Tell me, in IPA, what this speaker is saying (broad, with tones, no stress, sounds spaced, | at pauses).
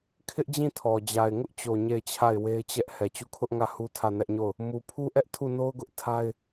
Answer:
kʰ ɪ˦ ʔ d͡ʑ ĩ˦˨ tʰ ɔ˨ d͡ʑ a˨ ɪ̯ ŋ ʊ˦ ʔ t͡ɕ o˨ ɲ e˦˨ ɪ̯ t͡ɕʰ a˦˨ ɪ̯ w e˦ ɪ̯ t͡ɕ ɛ˦ ʔ h ɛ˨ t͡ɕ u˦˨ kʰ ʊ˦ ʔ ŋ ä˦˨ h u˦ tʰ ä˦˨ n ɛ˦ ʔ ɲ o˦˨ ʊ̯ | m u˨ pʰ u˦ ʔ ɛ˦ ʔ tʰ u˦˨ n o˦ ʊ̯ ɡ ʊ˦ ʔ tʰ a˦ ɪ̯